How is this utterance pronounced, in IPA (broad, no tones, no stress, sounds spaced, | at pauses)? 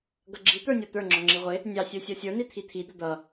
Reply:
ɡ ʌ ɡ͡ǁ i t̪ ə˞ nʲ ɔ t̪ ə˞ ŋ͡ǁ ɔ ŋ͡ǁ i ʁʷ ɪ | nʲ ɑ sʲ ə˞ sʲ ɔ sʲ ə˞ n i t̪ʰ i t̪ʰ i d̪ ʊ d̪ ʌ